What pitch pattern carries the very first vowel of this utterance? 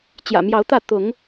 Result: low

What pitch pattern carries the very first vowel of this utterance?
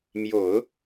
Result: low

